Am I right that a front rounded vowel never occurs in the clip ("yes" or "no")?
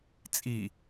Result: yes